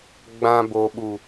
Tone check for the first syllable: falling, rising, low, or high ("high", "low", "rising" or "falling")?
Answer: low